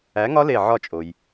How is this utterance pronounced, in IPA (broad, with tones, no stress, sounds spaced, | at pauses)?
æ˩˥ ŋ ɒ˦˥ l e˧˩ ʕ ɒ˧˩ t͡ʃʼ o˩ j